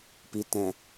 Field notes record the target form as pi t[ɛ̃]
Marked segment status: correct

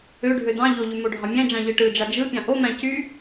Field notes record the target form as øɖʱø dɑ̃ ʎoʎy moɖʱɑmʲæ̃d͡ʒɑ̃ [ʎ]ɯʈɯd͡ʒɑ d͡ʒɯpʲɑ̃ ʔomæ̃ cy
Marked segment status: correct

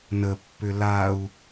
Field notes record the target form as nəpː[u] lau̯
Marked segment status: incorrect: ʏ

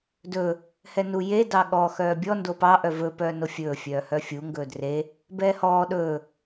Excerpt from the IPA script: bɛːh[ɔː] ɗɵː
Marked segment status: correct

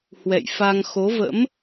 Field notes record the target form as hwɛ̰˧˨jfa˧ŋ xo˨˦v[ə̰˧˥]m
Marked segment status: correct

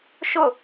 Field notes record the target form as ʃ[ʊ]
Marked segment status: correct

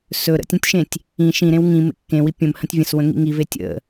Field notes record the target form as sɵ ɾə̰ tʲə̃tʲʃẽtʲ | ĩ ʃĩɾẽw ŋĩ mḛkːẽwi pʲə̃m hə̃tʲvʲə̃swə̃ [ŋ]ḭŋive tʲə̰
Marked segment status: correct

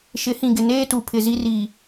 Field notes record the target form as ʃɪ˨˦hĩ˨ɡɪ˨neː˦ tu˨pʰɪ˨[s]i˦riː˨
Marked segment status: incorrect: z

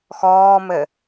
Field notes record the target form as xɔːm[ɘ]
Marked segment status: correct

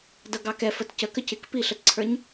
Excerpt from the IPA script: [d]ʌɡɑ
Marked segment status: correct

